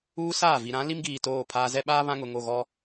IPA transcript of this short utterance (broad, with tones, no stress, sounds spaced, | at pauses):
uː˦ s aː˦˨ v i˨ ɾ ã˨˦ l i˦ m ɡ iː˨ t oː˦˨ pʰ aː˦ z ɛ˦ ɓ aː˦ β ã˦ ŋ ʊ˨ ŋ o˦˨ ɣ ɔ˦